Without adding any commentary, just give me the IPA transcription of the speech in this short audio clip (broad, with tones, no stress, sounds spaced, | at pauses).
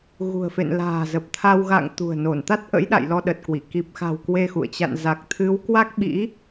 ɣ ṳ˨˩ ə̯ f ḛ˧˨ n l a̤ː˨˩ z ə˨˩ p̚ t̪ʰ a˧ w ɣ a̰˧˨ ŋ t̪ ṳ˨˩ ə̯ n o˧˩ n t̪ a˦˥ t̚ ʔ ə̰˧˥ j ɗ a̰˧˨ j l ɔ˧ ɗ ə˨˩ t̚ k w i˧˩ k i˨˩ p̚ x a̤˨˩ w k w e˧ x ṵ˧˨ ə̯ t͡ɕ a̰˧˨ n z a˨˩ k̚ t̪ʰ ɨ˨˦ w k w a˦˥ k̚ ɓ ḭ˧˥